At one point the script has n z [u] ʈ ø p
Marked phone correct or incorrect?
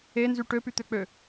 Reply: incorrect